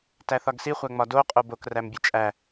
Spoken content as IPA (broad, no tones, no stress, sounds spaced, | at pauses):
t æ θ ɒ ɡ s i χʷ æ ŋ͡m ɒ d o qʼ o b o k r æ m bʲ e t͡ʃʼ æ